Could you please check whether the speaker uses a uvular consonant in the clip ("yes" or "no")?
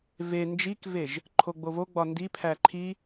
no